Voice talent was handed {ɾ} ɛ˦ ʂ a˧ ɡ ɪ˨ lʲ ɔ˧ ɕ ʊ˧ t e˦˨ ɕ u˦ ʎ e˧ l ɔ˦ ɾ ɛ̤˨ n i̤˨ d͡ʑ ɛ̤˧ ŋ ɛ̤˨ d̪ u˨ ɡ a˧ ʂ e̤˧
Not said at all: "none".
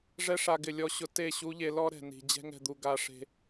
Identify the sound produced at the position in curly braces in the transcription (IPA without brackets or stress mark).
ʐ